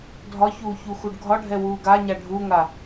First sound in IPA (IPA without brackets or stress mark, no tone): dʱ